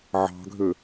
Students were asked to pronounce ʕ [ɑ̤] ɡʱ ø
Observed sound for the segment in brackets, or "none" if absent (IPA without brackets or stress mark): ɑ̤